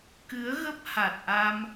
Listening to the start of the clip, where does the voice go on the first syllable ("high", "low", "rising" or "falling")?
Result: rising